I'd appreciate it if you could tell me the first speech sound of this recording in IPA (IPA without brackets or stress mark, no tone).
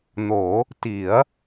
n̪